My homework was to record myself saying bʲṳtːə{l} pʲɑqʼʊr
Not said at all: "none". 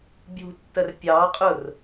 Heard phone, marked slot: r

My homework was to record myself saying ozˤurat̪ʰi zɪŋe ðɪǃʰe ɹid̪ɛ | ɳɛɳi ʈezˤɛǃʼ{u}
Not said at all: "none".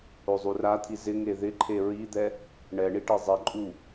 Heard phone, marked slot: u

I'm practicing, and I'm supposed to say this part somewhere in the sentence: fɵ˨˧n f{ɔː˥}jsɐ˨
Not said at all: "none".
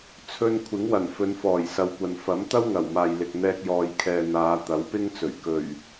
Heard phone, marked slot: ɔː˨˩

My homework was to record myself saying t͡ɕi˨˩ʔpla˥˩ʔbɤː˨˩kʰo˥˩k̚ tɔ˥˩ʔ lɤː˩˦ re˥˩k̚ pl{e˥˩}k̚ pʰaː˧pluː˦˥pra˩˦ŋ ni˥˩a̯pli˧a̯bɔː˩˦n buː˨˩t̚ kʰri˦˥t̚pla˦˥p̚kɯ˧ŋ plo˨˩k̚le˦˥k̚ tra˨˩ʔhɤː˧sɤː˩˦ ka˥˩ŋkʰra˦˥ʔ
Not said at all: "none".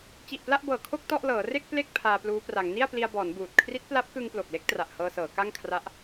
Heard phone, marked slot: e˥˩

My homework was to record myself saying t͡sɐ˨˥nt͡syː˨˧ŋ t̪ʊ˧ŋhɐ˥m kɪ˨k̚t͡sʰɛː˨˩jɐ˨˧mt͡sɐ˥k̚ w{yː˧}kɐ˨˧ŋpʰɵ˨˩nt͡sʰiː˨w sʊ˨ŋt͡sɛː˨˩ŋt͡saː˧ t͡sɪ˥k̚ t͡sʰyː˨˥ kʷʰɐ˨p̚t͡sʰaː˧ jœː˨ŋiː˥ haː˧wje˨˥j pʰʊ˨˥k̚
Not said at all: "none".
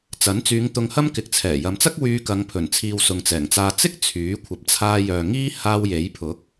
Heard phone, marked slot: yː˧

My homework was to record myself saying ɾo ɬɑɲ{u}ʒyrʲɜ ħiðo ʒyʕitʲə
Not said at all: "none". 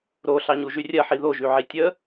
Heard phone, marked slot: u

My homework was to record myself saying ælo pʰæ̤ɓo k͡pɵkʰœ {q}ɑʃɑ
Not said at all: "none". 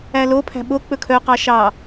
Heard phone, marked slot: q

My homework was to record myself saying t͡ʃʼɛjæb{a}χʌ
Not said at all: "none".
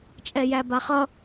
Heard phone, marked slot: a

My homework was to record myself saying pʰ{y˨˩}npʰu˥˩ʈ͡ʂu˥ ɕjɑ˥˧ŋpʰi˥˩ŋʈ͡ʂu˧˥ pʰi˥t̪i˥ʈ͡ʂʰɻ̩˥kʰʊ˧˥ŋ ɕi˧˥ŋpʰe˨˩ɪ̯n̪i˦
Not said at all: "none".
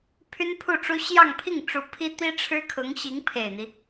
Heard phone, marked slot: y˥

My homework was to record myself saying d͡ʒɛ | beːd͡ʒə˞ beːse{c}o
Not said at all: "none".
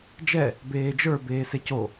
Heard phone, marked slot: c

